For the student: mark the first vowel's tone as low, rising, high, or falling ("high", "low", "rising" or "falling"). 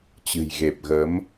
low